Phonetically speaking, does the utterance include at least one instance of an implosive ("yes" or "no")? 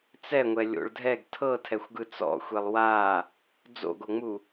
no